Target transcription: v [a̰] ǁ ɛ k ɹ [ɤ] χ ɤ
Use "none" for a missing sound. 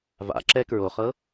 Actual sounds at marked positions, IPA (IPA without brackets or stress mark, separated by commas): a̰, o